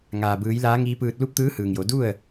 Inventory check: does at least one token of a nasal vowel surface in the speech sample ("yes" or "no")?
no